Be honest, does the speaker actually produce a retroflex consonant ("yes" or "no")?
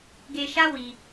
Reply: no